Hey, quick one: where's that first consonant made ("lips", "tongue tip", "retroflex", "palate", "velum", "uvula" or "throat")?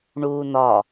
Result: retroflex